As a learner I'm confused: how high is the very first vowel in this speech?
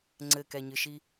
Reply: mid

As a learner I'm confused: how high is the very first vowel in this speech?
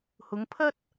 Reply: high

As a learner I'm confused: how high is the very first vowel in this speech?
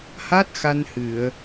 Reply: low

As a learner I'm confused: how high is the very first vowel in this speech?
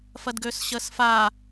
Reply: low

